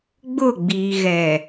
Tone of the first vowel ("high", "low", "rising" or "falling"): falling